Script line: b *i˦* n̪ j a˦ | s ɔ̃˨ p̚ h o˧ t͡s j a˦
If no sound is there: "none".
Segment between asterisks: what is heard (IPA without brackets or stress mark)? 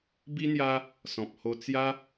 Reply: i˦